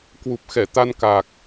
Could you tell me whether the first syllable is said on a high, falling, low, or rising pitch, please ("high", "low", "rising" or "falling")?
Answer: low